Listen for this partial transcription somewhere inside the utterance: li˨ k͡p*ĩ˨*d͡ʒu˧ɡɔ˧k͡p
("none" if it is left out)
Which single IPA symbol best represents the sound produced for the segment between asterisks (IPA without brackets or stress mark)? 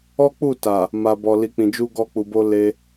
ĩ˨